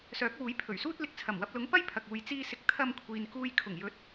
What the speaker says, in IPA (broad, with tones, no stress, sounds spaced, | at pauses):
s œː˨˥ k̚ w uː˨˥ j pʰ ɵ˨˩ ɥ s uː˥ t̚ l ɪ˨ k̚ t͡sʰ ɐ˨˩ m w ɐ˧ p̚ l ʊ˨˥ ŋ p ɐ˥ j pʰ ɐ˨ k̚ uː˨ j t͡s iː˧ s ɪ˨˥ k̚ t̪ʰ ɐ˧ m kʷʰ iː˨ n k uː˧ j kʰ ʊ˨˩ ŋ j ɵ˨˥ t̚